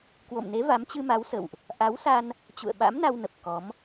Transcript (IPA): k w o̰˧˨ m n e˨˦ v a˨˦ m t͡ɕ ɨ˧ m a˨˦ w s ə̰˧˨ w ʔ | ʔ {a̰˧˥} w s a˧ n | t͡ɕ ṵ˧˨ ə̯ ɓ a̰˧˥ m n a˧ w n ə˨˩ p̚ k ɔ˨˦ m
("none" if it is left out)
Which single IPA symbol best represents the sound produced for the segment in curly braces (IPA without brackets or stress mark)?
a˨˦